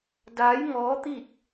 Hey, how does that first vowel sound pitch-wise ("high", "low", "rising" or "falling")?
rising